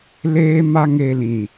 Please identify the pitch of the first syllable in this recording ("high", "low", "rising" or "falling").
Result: high